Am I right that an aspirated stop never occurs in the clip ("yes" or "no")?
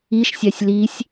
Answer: yes